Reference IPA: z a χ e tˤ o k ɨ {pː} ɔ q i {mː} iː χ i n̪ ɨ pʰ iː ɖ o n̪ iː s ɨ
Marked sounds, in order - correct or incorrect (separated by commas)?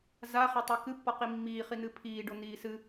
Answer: correct, correct